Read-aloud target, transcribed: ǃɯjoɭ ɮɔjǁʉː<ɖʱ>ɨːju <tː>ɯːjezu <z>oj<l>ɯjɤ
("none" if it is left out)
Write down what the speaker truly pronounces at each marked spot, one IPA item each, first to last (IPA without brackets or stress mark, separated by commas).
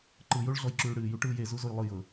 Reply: ɽ, ʈ, z, lˠ